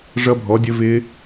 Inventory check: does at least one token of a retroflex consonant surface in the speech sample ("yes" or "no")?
yes